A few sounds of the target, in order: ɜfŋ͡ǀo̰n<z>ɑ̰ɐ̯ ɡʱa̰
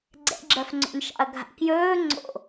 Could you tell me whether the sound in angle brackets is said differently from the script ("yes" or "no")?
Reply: yes